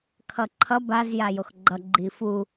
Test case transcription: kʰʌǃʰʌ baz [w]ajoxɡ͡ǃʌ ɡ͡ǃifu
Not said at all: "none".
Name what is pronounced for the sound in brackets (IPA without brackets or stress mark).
j